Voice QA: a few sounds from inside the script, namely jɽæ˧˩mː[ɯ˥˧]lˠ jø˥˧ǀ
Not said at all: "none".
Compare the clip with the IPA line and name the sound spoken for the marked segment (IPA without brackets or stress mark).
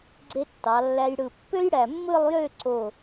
ɯ˥˧